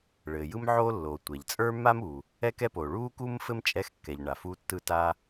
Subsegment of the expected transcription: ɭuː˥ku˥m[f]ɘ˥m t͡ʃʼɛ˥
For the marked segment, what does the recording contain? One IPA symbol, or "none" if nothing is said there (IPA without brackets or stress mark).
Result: f